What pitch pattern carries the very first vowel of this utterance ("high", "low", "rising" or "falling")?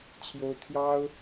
high